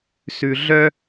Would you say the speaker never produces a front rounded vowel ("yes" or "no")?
no